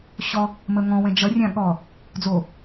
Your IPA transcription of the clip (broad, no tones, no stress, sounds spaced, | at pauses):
ɕ ɔ | m ə ŋ ɔ̃ w ɛ̃ d͡ʒ ʌ rʲ ã ɠ ɔ | d͡z o